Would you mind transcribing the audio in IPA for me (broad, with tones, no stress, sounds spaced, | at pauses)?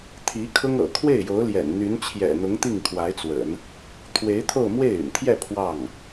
t̪ʰ i˧˥ kʰ ʊ˥ ŋ ɤ̰˨˩ kʰ w e˥˩ ɪ̯ j o˧˥ ʊ̯ l j ɛ̰˨˩ n n̪ y˧˥ n t͡ɕʰ j ɛ̰˨˩ n̪ ʊ˧˥ ŋ t̪ i˥˩ ŋ kʰ w a˧˥ ɪ̯ t͡s w ə̰˨˩˦ n | t̪ʰ w e˧˥ ɪ̯ t̪ʰ o˥˧ ʊ̯ m w e˥˩ ɪ̯ y̰˨˩ n t̪ʰ j ɛ˥˧ pʰ w ɑ˥˩ ŋ